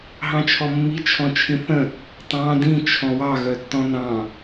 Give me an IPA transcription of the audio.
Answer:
ɦ ɑ̃ t͡ʃʰ ɔ mː i t͡ʃʰ ɔ̃ t͡ʃʰ ĩ θ ə̃ | tˤ ɑ̃ d ĩ t͡ʃʰ ɔ̃ w ɑ ɣ œ tː ɔ̃ n ɑ̃

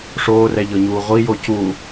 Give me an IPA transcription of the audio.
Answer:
ʂ oː r ɛ ʎ ɤ ɲ uː ʁʷ i j o c u

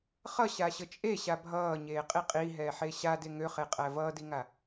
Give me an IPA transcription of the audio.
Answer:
χ ʌ ɕ a ɕ ə t͡ʃʼ e ɕ a bʱ ʌː ɲ eː qʼ i qʼ i ɦ ɛː ħ e ɕ a d e ŋ ø χ e qʼ æ v ʌː d i ŋ a

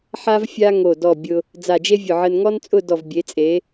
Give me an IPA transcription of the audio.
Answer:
ħ a˥ v fʲ a˥ ŋ o˧˩ d ɔ˧˩ bʲ ʊ˧ | d͡z a˧˩ d͡ʒ e˥ vʲ ʊ˧˩ ʕ ə˧ n ŋ ɔ˥ n t͡sʼ ʊ˥˧ d ɔ˧˩ v bʲ e˩˧ t͡sʼ e˩˧

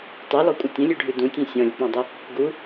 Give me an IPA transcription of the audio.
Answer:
tˤ ʉ l ɔ kʷʼ ə tʲ ə̃ lʲ ʉ ɖʱ ʉ d ũ tʲ ẽ sʲ ɔ̃ lʲ ə k͡p ɔ̃ dˤ ʉ | ɡ u

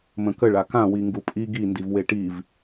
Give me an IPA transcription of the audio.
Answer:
m ə̃ k ə ɭ a k ã w i ŋ ɡ u pʼ i ɡ i n d i v w e ʈ i v

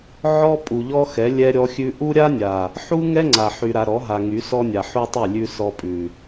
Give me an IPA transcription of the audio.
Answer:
ʕ ɔ˦ pʼ u˨ ʎ ɔ˦ x ɛ˨˦ lʲ ɛ˦ ɾʲ ɔ˦ xʲ ʉ˦ ʔ u˦ ɾʲ a˦ nʲ a˨ | ħ u˦ ŋ ɛ˦ ŋ͡ǀ a˨ ħ y˨ ɾ a˨ ɾ ɔ˨˦ ɦ a˨ ŋ y˨˦ s ɔ˦ nʲ a˨ ħ u˦ tˤ y˦˨ lʲ ʉ˦ s ɔ˦ pʼ ʉ˨

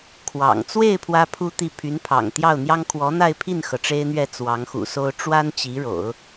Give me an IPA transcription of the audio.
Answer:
kʰ w ɑ̰˨˩ ŋ t͡s w e˥˩ ɪ̯ pʰ w ä˥ pʰ u˥ t̪ i˥˩ pʰ y˧˥ n pʰ ɑ̰˨˩ ŋ t̪ j ɑ˥˩ ʊ̯ n̪ j ɑ˥ ŋ kʰ w ɔ˧˥ n̪ a˥˧ ɪ̯ pʰ i˥˩ n x ɤ˩ ʈ͡ʂ e˥ ɪ̯ n̪ ɥ ɛ˥˩ t͡s w ɑ˧˥ ŋ x ṵ˨˩ s o˥ ʊ̯ ʈ͡ʂ w a˥ n t͡ɕ i˧˥ ɻ o̰˨˩˦ ʊ̯

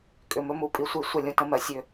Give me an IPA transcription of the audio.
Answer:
kʼ ʏ˨ m ɵ˦ m u˦˨ pʼ i˦ sʷ i˦˨ sʷ ə˦˨ lʲ ũ˨ t ə̃˦ m ɜ˨ sʲ ø˦

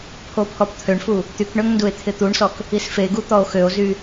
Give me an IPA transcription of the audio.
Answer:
pʰ o pʰ ɔ p t̪ʰ ø ɳ f u | t̪ y k ɳ ø ŋ n d u e̯ t̪ʰ ɪ t̪ u ɳ s ɔ k | i s f e ɡ u t̪ ɔ o̯ x ø o̯ z y

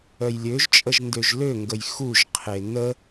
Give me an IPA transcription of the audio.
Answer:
œ j lʲ ø ʒ t͡ʃʼ ə ʒ n d ø ʒ l ø ŋ ɡ ə j x u ʒ qʰ e n ə

